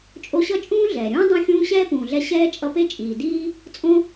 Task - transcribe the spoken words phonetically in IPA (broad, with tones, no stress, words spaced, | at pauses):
t͡ʃʼo˦ɕʌ˥t͡ʃʼũː˥ ɮɛː˩ɾʲũː˦ dˤõ˦xʲũː˦ ɕɛː˥pũː˨ɮɛ˦ ɕɛː˦ t͡ʃʼʌ˦pe˥t͡ʃʼiː˨ diː˥ | t͡sʼõ˦